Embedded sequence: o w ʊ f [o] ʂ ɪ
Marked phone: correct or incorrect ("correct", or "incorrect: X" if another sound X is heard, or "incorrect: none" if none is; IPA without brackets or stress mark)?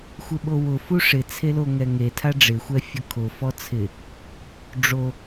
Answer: incorrect: u